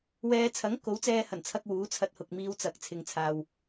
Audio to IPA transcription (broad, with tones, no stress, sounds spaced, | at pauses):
w ɛː˧ t͡sʰ ɐ˨˥ ŋ k o˨˥ w t͡s ɛː˧ h ɐ˨˩ n t͡sʰ ɐ˧ k̚ w uː˨˥ t͡sʰ ɐ˧ t̚ h ʊ˨ k̚ m iː˧ w t͡s ɐ˨˥ k̚ t͡sʰ ɪ˨ ŋ t͡sʰ aː˨ w